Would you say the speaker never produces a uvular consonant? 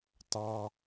yes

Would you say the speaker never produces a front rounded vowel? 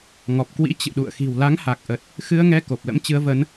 yes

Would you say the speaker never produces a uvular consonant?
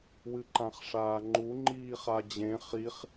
no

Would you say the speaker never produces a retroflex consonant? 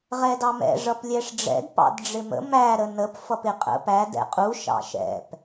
no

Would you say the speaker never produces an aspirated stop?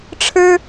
no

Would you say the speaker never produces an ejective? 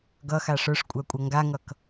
no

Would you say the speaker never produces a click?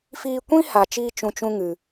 yes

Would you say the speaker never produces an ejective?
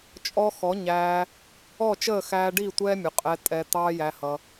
no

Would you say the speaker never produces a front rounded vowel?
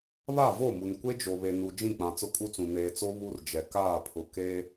yes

